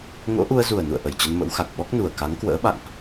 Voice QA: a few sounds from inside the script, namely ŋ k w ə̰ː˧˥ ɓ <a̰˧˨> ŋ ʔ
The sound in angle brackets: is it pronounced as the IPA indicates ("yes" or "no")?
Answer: yes